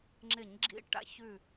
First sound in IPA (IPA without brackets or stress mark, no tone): ŋ͡ǁ